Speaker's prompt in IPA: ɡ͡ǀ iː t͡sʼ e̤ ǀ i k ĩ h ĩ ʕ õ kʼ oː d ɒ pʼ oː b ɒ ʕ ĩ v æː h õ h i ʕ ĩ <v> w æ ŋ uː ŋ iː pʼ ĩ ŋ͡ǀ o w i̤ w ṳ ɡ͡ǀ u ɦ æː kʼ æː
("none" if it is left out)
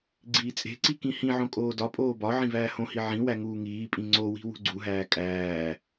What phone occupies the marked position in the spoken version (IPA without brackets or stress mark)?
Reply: none